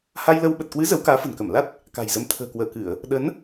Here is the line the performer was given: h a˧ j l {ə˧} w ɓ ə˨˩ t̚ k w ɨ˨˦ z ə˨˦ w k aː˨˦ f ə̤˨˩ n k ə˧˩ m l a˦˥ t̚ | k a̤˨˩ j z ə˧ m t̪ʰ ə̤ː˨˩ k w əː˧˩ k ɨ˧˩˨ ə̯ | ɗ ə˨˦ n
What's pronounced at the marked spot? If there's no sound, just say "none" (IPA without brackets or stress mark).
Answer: ə˧